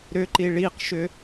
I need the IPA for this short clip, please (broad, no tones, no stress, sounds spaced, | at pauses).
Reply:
ɾ ʏ ǃ i ɭ i q ʃ ʏ